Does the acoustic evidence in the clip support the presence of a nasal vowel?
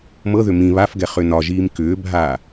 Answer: yes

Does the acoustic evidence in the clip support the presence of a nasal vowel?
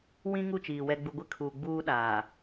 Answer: yes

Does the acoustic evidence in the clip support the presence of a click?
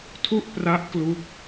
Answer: no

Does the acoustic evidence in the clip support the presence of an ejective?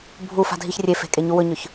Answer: yes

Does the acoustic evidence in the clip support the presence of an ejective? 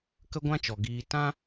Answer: no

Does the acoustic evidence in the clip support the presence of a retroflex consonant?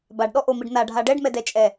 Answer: yes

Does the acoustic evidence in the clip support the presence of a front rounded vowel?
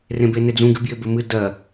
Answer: no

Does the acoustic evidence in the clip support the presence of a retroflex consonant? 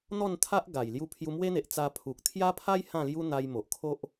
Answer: no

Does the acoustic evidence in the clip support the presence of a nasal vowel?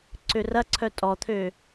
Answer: no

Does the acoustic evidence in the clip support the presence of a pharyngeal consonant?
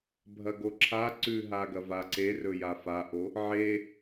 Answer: yes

